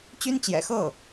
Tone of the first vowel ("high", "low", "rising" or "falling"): high